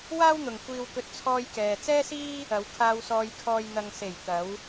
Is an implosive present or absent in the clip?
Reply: absent